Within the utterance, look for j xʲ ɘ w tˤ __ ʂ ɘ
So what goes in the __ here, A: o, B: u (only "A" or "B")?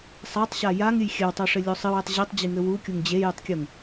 A